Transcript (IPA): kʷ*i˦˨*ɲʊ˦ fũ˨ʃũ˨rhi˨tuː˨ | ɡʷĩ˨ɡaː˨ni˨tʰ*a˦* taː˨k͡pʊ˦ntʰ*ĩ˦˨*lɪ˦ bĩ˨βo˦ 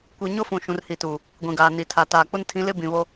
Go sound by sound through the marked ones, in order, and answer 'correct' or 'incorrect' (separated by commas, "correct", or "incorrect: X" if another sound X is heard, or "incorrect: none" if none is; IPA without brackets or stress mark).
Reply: incorrect: i˨, incorrect: a˨, incorrect: ĩ˨˦